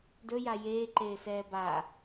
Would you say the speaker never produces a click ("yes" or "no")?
no